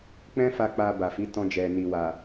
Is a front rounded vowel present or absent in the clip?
absent